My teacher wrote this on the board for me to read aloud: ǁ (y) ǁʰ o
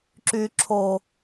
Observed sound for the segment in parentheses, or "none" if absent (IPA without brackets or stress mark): y